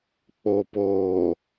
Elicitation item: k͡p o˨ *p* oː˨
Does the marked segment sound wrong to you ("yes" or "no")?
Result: no